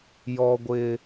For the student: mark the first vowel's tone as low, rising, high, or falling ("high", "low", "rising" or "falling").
high